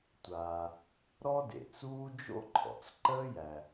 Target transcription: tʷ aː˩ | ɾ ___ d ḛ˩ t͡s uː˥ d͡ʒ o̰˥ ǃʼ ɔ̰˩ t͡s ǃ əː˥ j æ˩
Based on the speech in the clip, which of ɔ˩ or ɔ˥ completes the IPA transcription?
ɔ˥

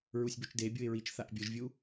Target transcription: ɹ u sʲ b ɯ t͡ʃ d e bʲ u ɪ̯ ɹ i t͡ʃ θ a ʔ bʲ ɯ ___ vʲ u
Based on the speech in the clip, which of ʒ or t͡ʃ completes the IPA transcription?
ʒ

